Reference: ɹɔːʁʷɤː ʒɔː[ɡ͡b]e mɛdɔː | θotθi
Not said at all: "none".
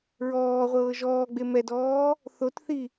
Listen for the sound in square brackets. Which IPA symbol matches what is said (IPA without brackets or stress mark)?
ɡ͡b